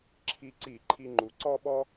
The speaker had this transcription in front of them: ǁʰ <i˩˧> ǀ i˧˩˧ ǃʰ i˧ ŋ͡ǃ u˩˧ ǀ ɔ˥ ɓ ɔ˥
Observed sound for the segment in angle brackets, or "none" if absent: i˧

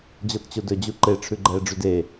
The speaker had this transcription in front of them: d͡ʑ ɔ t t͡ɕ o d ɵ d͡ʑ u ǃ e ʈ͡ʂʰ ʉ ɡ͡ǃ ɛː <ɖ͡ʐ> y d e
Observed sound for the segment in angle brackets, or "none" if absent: ɖ͡ʐ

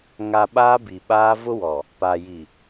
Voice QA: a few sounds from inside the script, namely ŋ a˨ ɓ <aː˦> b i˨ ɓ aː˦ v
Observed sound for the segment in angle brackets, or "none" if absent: aː˦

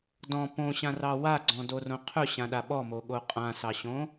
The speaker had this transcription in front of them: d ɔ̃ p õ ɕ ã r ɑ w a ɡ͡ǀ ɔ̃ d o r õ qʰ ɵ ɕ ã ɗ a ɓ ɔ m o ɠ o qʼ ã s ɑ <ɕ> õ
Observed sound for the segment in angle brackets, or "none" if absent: ɕ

